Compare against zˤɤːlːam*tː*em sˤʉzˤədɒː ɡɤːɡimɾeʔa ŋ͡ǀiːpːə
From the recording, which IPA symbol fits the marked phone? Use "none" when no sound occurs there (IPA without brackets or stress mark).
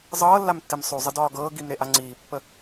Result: tː